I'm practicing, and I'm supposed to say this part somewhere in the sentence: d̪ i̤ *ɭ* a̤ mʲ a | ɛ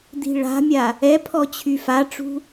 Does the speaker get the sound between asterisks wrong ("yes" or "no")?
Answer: no